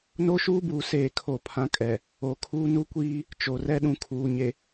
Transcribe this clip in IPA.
n o˦ ʃ uː˦ b uː˨ s eː˦˨ kʰ o˦˨ pʰ ã˦ kʼ ɛ˨ | o˨ kʰ uː˦ n u˦ kʷ iː˦ | t͡ʃ o˨ r ɛ˦ ɗ ũ˨ kʰ uː˨ ɲ e˨

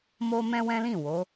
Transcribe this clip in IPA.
m o˦ m ɛ̃˦ w ɛ̃˦ l ĩ˦˨ w o˨˦

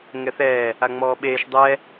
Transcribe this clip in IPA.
ŋ ɛ θ ɛː | a ŋ͡m ɔː ɓ eː ʃ dˤ ɛ

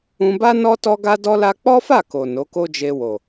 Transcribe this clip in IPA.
ũ˧ b a˦ n ɔ˦ t ɔ˦ ɡ a˦ d ɔ˦ l a˦ k͡p ɔ˦ f a˦˨ k o˨ n o˨˦ k o˦ d͡ʒ e˧ w o˨

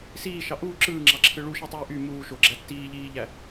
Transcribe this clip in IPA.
s iː ʃ ɑ ʔ uː ǁ ɯː ŋ͡ǁ ɑ ǁʰ ɯ ɭ u ʃ i tˤ uː ʔ y m uː ʃ o ɡ͡ǁ æ tː iː ʎ iː ʎ æ

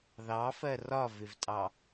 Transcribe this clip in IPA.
ð ɑ f ɜ r ɒ v ɪ v tʼ ɑ

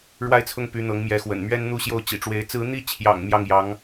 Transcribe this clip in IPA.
ɻ w a˥ ɪ̯ t͡sʰ ʊ˥˩ ŋ p y˧˥ n̪ ɤ˧˥ ŋ m j ɛ˧˥ x w ə̰˨˩ n m ɥ ɛ˥ n n̪ u˥˧ ɕ j o˥˩ ʊ̯ t͡ɕ ḭ˨˩ ʈ͡ʂ w e˧˥ ɪ̯ t͡s ɹ̩˧˥ n̪ i˥˩ t͡ɕʰ j ɑ̰˨˩ ŋ m j ɑ˥˩ ŋ j ɑ˧˥ ŋ

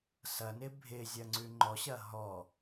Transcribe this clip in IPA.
s ɐ n ɪ bʱ ɪ zʲ ɐ ŋ͡ǀ ʉ ŋ͡ǃ ɔ ɕ ɐ ɦ ɔ

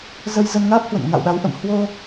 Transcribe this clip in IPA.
z ə˧ j z ə˧ n ŋ aː˦˥ p̚ h w ə̰˧˨ n ŋ a̰˧˨ w ɗ a˨˦ w ʔ ə̰˧˨ m h w o˧

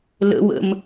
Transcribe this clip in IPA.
l ə̰ w ə̰ m

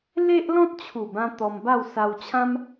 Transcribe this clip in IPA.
l e˦ ʔ l ɔ̃˦ t̚ t͡ɕʰ u˨˩ b ã˧ t̪ ɔ˧ m b a˥˧ w s a˧ w t͡ɕʰ ã˦ m

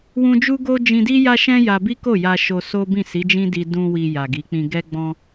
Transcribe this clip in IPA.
w ũ˦ d͡ʒ u˦ ɡ o˦ d͡ʒ ĩ˧ d i˦ j a˦ ʃ ɛ̃˦ j a˧ b i˦ k o˦˨ j a˧ ʃ o˧ s o˦ b ĩ˦˨ s i˨˦ d͡ʒ ĩ˦ d i˧ d ũ˧ w i˧ j a˨ ɡ i˨˦ k͡p ĩ˧ ɡ ɛ˦ ɡ͡b ɔ̃˧

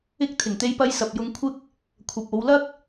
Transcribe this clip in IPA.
ɪ˧ k̚ t̪ʰ ɪ˨˩ ŋ t̪ e˧ j p ɐ˧ j s ɐ˨ p̚ j ʊ˨˧ ŋ kʷʰ ɪ˧ k̚ | kʷʰ ɐ˨ p̚ o˨˧ w l ɐ˥ k̚

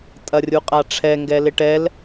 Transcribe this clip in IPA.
tʼ ɐ rʲ u qʼ a ʈ͡ʂʰ ɛ ŋ ɡ ɛ l ɪ ʈ ɛ l

